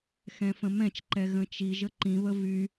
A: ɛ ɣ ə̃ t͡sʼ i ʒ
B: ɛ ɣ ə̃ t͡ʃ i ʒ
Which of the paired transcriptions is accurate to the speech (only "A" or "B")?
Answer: B